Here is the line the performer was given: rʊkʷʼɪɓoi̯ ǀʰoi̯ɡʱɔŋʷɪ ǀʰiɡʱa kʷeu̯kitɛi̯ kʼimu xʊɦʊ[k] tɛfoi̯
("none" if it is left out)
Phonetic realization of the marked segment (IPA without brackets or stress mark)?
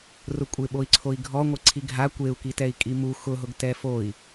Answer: ɡ